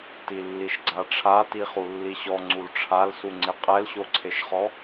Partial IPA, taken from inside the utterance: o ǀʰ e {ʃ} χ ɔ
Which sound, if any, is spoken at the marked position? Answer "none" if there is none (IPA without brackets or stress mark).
ʃ